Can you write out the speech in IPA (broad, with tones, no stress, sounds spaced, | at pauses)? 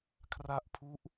kʰ r a˦˥ ʔ pʰ u˦˥ ʔ